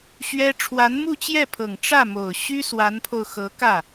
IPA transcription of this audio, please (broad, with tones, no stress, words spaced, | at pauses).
ɕɥɛ˥ ʈ͡ʂʰwa˧˥nmu˥˧t͡ɕjɛ˥˩pʰɤ˨˩ŋ ʈ͡ʂä˥˩mo˨˩ʊ̯ ɕy˥ swa˧˥npʰo˧ʊ̯xɤ˧˥ kä˥˩